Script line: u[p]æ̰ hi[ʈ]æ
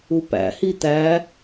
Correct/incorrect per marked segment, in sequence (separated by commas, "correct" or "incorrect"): correct, incorrect